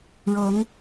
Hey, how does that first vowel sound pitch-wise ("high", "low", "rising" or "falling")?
rising